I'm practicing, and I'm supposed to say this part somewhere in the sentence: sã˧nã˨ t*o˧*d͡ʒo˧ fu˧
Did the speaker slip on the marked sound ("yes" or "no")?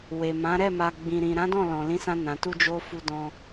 yes